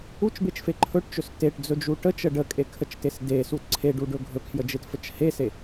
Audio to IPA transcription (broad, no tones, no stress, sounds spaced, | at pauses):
u t͡ʃ b e t͡ʃ f e ǃʰ ɵ ʈ t͡ʃ ɵ s t e ʈ d͡z ɵ d͡ʒ u ʈ ə t͡ʃ ə ɖ ə kʼ e kʰ ə t͡ʃ t e s d e s u t ǀʰ e ɖ u ɖ ɵ ɡʱ ɵ kʰ j ə d͡ʒ e t f ə t͡ʃ h e s e